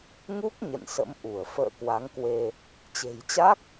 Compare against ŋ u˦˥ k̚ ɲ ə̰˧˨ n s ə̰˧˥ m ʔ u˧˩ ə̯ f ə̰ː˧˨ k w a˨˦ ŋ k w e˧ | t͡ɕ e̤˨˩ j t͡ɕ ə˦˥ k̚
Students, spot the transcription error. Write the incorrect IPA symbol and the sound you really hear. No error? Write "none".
ə˦˥ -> a˦˥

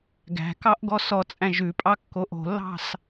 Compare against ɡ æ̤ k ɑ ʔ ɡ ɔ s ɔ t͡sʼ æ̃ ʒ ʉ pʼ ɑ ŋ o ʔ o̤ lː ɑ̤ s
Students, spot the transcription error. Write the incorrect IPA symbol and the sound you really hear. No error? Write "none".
ŋ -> kː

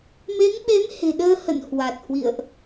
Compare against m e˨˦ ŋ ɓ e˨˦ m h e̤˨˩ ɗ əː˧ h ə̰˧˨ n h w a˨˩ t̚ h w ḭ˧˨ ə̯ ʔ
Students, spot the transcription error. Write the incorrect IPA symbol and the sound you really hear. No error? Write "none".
none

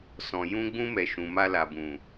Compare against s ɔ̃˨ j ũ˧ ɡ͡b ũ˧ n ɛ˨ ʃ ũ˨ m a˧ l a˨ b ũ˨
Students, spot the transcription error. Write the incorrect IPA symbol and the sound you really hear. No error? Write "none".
n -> m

